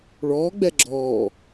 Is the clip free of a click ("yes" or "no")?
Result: no